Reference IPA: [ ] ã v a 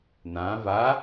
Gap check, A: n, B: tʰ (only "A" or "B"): A